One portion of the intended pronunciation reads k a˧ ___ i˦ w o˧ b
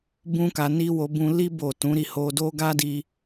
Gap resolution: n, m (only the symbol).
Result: n